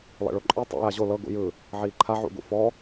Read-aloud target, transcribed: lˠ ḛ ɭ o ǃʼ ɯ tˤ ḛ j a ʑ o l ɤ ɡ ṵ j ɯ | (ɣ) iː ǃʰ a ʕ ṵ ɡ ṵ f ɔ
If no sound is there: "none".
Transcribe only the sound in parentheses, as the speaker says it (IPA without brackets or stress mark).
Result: ʕ